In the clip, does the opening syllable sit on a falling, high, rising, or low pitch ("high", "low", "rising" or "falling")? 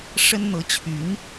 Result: high